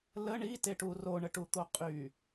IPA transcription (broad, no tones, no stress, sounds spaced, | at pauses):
l ə ɳ i t e ʈ u r o ɳ ə ʈ u t̪ o qʼ y